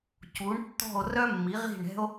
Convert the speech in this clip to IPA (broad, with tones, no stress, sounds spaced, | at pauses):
c u˩˥ ɳ tː ɔ̤˥˩ o̯ r œ˥ mː i˩˥ ʁ i̤˥˩ ɳ ɛ̤˥ o̯